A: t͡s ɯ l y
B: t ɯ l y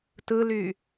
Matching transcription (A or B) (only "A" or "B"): B